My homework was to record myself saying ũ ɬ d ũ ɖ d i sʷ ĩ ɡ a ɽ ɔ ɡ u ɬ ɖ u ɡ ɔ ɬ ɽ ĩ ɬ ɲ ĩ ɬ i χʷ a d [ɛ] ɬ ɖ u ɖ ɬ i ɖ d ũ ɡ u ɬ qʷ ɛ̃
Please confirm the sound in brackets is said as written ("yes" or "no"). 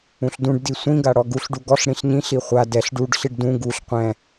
yes